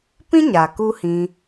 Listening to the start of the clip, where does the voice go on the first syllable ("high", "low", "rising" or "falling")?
high